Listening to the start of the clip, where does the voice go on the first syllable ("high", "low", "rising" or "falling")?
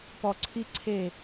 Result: low